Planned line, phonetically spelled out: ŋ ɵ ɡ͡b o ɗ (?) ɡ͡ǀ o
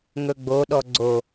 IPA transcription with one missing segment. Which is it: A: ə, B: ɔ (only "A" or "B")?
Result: B